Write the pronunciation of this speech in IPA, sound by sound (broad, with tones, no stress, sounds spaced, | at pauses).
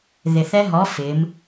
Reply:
ð ɪ˨˩ θ ɛ˦˥ ɦ ɔ˨˥ f ɪ˩˧ m